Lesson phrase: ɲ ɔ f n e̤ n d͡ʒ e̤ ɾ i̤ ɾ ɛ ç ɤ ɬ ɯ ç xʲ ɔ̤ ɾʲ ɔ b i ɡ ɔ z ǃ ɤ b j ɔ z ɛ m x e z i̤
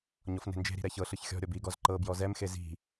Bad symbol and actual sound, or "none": none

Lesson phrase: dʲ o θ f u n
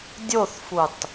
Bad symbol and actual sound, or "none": n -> tˤ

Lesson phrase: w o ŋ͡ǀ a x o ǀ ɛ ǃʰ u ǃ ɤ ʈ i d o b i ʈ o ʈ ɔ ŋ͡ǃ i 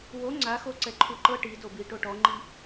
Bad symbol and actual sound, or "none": none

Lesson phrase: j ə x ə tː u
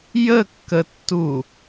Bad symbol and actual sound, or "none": x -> kː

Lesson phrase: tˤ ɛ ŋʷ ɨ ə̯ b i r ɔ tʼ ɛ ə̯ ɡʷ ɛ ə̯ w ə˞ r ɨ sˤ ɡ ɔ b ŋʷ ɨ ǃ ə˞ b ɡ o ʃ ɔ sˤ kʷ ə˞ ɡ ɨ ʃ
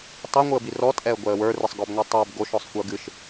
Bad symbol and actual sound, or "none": ǃ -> tˤ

